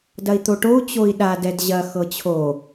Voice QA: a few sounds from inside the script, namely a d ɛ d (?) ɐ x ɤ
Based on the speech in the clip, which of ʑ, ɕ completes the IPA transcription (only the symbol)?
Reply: ʑ